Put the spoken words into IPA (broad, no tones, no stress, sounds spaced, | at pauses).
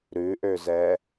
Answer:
ɾ ʉ ʔ ø z ɛ